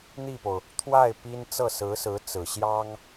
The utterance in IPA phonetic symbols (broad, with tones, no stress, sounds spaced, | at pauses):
n̪ i˥˩ p o˩ ʊ̯ | t̪ʰ w a˥˩ ɪ̯ p i˥ n t͡s ɤ˥˩ s ɹ̩˧˥ s ɹ̩˧˥ t͡s ɹ̩˨˩ ɕ j ɑ˥ ŋ